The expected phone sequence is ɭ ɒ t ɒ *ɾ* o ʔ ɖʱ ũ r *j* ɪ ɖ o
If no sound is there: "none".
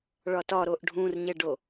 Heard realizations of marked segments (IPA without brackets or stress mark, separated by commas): ɾ, ɲ